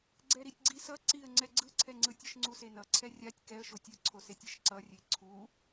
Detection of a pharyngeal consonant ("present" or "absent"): absent